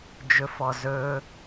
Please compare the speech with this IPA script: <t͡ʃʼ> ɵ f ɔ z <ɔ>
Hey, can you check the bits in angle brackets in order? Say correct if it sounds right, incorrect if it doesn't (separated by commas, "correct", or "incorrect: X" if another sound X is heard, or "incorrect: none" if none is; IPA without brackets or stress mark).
incorrect: d͡ʒ, incorrect: ɵ